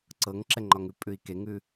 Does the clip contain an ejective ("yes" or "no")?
yes